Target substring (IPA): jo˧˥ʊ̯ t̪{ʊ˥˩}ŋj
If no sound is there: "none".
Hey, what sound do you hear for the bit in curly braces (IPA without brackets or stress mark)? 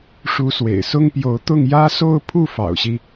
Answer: ʊ˥˩